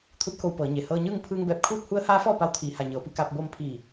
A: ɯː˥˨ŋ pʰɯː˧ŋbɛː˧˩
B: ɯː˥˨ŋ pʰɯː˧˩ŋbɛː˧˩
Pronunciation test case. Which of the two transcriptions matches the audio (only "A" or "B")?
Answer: A